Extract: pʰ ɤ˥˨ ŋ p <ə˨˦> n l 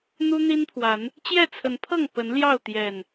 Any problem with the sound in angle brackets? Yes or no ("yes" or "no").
no